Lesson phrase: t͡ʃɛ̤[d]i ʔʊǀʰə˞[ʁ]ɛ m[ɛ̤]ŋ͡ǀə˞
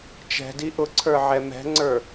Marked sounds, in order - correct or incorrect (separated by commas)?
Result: correct, incorrect, correct